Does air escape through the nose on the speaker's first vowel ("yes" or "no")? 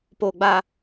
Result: no